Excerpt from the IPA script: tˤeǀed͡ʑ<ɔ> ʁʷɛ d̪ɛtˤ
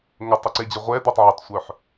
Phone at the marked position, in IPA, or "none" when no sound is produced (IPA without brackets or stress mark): ə